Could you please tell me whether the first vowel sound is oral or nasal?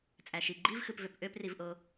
oral